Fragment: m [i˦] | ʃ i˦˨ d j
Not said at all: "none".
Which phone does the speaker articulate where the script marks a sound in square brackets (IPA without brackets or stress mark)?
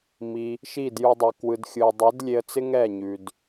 i˧